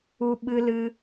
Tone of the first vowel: high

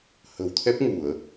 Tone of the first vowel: low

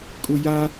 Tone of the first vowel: low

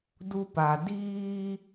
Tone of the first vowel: high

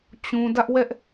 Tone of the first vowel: high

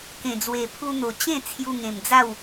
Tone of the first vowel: low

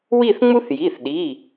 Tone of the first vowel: falling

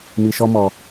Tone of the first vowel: high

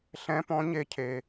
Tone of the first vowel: rising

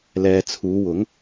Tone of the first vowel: low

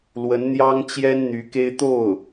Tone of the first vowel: rising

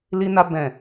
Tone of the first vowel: high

